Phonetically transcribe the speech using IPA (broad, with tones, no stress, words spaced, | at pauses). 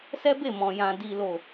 sɛ˦be˦˨mɔ̃˨jã˨ di˨lo˨